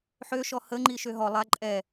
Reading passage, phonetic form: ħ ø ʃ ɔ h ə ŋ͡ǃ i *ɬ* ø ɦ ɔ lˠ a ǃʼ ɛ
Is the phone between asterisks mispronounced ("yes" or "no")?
yes